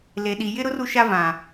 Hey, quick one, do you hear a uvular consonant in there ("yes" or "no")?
no